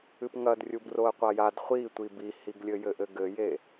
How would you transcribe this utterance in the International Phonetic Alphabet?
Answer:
ɨ p ŋ ɐ d rʲ u b r o ə̯ qʷ a j a d χʷ i tʷ i b i h i ɡ lʲ ɘ j ɘ ʔ ɘ ɡ ɘ j e

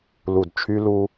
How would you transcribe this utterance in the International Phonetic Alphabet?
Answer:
l u˨ d t͡ʃʰ y˦ l u˦

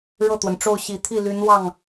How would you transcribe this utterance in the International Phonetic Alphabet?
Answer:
ɻ ɤ˥˩ t̪ w ə˩ n ʈ͡ʂ o˥˩ ʊ̯ ɕ i˨˩ t̪ʰ i˥˩ l y˧˥ n w ɑ˥˩ ŋ

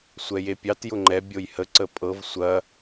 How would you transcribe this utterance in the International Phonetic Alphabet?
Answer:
sʷ ɛ j e pʲ ɑ t j ʊ ŋ͡ǃ ɛ bʲ o j h ə ǀ ə pʼ ɤ v sʷ ɐ

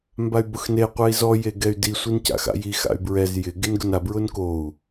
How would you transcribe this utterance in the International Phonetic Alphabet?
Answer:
m b a y̯ b ʊ x n e qʷ ɛ i̯ z ɔ j e ɡ ɛ y̯ d i sʷ i n c a̰ x a̰ j i x a̰ y̯ b ɹ ɛ z j ɪ ɡ e n ɡ ʊ n a b ɹ ʊ n k o u̯

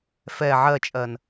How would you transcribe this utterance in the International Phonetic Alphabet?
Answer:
f ɛ ʕ ɜ t͡ʃʼ ɜ n

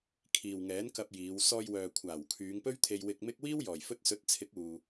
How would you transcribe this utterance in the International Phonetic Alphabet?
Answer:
kʰ iː˨ w ŋ ɛː˨˥ n k ɐ˧ p̚ j iː˨˧ w s ɔː˧ j w œː˨ kʷʰ aː˨˩ w kʰ yː˨˧ ŋ p ɵ˥ ɥ t̪ʰ e˧ j w ɪ˧ k̚ m ɪ˥ k̚ w iː˥ w j ɔː˨˩ j f ɵ˧ t̚ s ɵ˨˥ t̚ t͡sʰ ɪ˨˥ k̚ uː˨

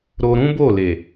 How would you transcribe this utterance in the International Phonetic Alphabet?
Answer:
ɾ o˧ ɾ ũ˦ b o˦˨ l e˨

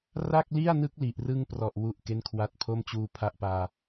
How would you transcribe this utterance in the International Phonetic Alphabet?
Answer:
r a˥˩ k̚ l i˥˩ a̯ n ɯ˦˥ k̚ l i˨˩ ʔ r ɯ˥˩ ŋ p r ɔ˨˩ ʔ w u˥˩ ʔ k e˥˩ n kʰ w a˥˩ t̚ pʰ o˥˩ m t͡ɕ uː˧ pʰ a˥˩ ʔ p aː˧

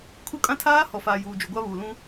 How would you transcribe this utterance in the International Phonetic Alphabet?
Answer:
kʰ u˦ kʼ ã˦ tʰ aː˦ h ɔ˨ f aː˨ j uː˨ d͡ʒ u˨ ɡʷ a˦ β uː˨ l ũ˦

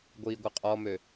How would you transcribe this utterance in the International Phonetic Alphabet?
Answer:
ɡʷ iː ɡʷ ɐ qʼ ɔ m ø

